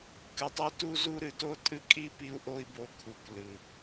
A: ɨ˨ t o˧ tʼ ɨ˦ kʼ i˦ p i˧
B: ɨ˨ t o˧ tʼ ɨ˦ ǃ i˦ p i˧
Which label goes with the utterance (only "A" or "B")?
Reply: A